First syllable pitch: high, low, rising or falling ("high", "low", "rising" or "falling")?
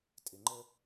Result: low